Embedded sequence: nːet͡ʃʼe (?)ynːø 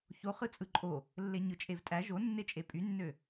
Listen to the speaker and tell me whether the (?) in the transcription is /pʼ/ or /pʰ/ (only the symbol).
pʼ